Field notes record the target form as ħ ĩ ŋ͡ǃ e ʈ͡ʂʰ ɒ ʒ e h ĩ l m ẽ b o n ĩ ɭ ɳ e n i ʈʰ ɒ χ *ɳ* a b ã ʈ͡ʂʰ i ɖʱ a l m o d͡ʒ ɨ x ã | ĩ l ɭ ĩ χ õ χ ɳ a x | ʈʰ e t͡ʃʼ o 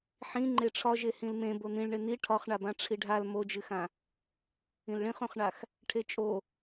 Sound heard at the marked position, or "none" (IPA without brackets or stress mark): ɳ